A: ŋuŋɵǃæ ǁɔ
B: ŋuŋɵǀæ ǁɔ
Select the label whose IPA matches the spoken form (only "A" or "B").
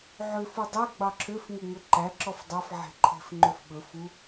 A